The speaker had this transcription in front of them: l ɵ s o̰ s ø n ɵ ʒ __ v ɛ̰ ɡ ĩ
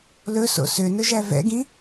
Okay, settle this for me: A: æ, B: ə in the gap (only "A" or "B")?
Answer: A